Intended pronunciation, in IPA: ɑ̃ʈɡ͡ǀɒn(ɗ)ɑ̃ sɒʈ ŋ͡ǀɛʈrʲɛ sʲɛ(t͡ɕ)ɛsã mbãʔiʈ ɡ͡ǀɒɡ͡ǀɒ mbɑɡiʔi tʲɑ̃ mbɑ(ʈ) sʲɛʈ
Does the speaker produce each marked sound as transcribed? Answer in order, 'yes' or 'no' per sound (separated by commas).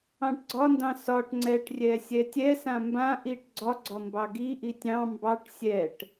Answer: no, no, yes